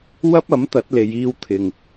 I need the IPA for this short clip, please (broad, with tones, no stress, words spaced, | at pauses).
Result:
wɐ˥p̚ɐ˨˥m t̪ɐ˨˥t̚le˨˧j iː˧wt̪ʰɪ˨ŋ